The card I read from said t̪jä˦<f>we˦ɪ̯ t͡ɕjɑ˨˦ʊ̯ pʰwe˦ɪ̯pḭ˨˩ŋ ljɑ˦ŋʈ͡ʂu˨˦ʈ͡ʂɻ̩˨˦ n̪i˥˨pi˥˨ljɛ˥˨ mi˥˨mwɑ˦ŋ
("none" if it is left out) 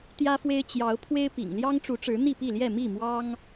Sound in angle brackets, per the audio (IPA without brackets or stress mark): f